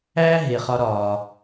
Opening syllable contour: high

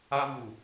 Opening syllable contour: high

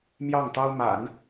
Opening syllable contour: falling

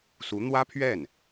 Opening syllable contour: rising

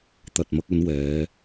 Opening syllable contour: low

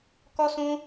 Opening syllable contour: high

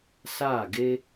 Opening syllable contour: falling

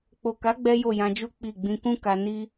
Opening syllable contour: low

